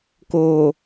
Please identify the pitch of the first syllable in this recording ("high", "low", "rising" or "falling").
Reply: low